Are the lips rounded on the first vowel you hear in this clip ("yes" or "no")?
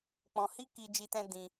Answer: yes